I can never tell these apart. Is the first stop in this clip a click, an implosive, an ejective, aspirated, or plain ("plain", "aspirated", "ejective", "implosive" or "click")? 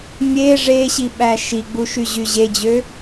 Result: implosive